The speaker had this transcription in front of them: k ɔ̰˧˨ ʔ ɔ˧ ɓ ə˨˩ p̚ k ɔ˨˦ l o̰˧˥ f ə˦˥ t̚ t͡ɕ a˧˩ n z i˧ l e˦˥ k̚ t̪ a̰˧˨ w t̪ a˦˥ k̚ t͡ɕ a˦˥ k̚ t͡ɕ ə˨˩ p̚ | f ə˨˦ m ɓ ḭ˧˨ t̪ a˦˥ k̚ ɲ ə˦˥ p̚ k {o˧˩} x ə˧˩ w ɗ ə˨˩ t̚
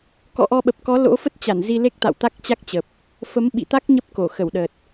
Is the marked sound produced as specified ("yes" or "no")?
yes